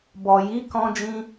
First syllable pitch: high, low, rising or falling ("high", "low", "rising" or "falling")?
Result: low